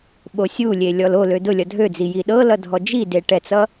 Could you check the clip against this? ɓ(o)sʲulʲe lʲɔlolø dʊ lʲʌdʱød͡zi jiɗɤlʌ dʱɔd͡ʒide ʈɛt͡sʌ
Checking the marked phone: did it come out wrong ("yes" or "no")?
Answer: no